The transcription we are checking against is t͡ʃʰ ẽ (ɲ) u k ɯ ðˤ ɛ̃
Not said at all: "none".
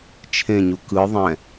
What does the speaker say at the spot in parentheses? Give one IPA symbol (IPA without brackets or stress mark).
ɲ